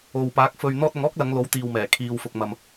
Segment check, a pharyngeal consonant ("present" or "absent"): absent